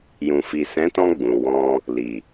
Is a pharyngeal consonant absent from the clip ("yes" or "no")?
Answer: yes